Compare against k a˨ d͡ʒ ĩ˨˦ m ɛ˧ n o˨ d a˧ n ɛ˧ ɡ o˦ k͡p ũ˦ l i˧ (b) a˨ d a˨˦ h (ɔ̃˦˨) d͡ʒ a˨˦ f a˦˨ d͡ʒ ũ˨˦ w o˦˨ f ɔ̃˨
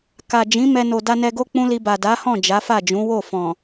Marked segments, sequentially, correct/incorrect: correct, correct

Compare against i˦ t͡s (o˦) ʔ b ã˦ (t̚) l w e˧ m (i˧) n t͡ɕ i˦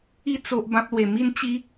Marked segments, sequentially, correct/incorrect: correct, incorrect, incorrect

